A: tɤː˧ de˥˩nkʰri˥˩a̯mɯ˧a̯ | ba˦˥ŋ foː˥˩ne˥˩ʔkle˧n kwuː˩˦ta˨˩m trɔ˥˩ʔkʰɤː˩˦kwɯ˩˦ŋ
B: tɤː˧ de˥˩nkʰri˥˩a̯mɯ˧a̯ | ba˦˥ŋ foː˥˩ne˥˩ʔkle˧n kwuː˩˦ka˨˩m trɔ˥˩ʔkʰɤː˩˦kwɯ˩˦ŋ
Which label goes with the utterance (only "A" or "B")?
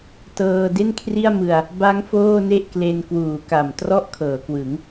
B